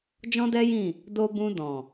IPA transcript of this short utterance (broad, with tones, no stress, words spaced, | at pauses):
d͡ʒɔ̃˦dɛ˦jĩ˦˨ | do˧bũ˧dɔ̃˨